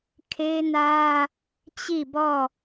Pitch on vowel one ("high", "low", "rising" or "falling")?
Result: high